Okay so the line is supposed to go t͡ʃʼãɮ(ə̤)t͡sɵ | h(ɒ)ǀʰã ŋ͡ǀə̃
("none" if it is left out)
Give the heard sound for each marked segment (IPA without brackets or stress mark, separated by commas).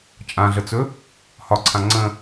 ə, ɒ